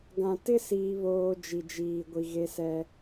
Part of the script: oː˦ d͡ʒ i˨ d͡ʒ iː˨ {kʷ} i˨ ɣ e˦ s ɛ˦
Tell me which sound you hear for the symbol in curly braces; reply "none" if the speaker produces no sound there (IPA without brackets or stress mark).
ɡʷ